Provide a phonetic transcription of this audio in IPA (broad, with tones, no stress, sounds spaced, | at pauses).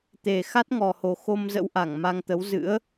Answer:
t̪ e˨˩ x a˦˥ t̚ ŋ ɔ˨˩ h o˨˩ x o˧ m z ə̰˧˥ w ʔ a˧˩ ŋ m a˧ ŋ t̪ ə˨˦ w z ɨ̰˧˥ ə̯